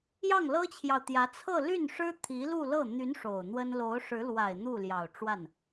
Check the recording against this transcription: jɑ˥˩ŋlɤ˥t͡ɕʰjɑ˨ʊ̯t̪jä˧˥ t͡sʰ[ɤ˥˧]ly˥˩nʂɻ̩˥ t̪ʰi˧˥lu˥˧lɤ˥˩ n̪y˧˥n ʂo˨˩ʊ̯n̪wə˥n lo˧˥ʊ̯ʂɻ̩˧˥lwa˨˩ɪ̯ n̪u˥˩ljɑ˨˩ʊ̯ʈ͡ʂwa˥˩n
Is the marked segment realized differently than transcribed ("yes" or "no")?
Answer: no